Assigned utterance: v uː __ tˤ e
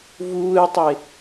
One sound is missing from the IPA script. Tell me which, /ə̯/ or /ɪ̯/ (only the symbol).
ɪ̯